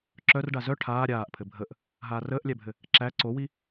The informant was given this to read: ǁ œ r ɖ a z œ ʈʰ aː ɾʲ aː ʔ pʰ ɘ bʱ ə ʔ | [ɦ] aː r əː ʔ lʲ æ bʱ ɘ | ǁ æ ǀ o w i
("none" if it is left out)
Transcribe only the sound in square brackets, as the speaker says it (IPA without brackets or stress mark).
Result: ɦ